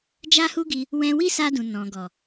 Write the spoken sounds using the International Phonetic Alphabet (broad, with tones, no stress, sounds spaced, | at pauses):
d͡ʒ a˦ h u˦ ɡ i˧ | w ɛ̃˧ w i˦ s a˧ d ũ˨ n ɔ̃˨ ɡ ɔ˨